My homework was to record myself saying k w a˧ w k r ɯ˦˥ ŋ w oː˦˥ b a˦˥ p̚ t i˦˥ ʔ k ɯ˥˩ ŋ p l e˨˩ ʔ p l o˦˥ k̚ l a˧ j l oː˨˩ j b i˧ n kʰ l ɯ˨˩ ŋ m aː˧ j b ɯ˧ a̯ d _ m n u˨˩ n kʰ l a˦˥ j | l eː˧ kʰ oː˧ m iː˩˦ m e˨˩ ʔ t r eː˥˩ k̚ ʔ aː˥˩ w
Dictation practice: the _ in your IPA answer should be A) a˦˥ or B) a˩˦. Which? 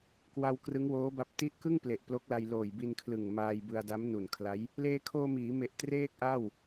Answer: A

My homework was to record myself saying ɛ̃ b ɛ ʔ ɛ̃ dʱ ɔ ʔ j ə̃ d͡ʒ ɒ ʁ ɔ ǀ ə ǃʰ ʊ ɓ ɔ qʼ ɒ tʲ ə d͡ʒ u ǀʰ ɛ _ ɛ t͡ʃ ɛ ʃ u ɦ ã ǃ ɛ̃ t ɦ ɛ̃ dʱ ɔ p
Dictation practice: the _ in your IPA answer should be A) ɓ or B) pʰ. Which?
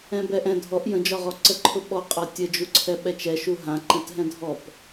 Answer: A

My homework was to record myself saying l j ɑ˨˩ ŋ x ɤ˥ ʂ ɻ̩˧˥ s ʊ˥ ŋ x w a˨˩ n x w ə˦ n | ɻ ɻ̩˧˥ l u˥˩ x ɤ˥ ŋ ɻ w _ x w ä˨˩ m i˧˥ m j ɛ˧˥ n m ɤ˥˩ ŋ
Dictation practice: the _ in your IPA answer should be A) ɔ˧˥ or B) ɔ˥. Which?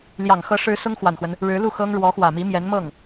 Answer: A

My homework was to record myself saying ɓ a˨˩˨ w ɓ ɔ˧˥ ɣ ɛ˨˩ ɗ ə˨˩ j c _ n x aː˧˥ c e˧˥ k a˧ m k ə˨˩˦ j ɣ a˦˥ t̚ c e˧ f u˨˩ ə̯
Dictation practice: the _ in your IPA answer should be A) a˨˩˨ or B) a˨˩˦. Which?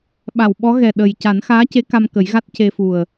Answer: B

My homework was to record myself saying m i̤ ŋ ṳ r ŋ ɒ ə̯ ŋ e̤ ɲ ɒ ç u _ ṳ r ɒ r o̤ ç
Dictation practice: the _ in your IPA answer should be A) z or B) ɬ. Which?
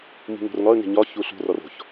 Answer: B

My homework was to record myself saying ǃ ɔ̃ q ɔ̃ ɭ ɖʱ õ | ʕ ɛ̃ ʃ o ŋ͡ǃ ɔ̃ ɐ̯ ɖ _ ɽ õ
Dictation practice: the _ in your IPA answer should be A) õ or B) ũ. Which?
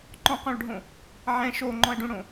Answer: B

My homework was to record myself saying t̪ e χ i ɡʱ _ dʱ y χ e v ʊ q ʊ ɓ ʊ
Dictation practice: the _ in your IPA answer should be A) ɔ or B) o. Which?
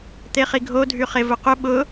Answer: B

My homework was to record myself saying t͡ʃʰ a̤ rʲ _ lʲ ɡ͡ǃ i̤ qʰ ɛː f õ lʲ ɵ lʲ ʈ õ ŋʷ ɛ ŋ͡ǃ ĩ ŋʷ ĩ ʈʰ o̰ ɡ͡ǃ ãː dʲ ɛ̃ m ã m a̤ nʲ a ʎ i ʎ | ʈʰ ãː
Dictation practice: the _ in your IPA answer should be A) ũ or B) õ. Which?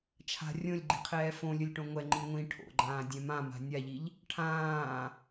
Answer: B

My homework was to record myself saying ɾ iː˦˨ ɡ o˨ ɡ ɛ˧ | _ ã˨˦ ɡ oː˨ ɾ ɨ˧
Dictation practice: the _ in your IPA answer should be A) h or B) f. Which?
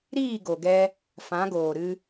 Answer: B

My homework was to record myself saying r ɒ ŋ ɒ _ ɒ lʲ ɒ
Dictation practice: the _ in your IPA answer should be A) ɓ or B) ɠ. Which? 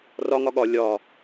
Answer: B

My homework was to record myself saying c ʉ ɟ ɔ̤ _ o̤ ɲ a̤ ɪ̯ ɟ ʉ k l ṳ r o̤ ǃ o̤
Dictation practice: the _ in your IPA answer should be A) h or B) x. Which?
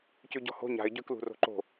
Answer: A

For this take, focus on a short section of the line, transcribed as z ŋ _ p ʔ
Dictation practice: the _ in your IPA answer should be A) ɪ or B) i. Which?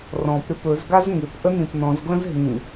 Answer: A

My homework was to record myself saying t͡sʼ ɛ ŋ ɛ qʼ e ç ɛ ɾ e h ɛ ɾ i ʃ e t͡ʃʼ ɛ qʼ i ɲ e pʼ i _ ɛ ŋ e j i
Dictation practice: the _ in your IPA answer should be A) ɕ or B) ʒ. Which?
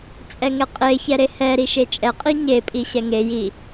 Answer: A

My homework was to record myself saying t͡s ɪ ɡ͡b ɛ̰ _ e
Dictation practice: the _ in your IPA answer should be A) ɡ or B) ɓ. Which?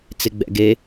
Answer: A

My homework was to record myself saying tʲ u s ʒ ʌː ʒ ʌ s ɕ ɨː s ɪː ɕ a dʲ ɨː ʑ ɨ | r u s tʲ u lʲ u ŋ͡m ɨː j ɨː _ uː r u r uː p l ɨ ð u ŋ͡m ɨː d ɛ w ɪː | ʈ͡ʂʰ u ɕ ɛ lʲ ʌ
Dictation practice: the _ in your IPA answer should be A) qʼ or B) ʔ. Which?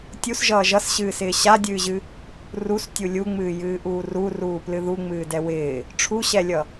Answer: B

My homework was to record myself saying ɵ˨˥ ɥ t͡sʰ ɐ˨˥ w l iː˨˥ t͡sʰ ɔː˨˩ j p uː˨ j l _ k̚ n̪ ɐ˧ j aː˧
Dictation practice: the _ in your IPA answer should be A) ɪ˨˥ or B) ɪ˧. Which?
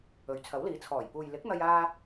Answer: A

